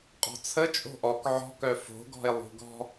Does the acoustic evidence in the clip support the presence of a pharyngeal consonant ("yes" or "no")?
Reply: yes